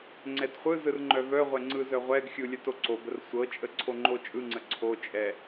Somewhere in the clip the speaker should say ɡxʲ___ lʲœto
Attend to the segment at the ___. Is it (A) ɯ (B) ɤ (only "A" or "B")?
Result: A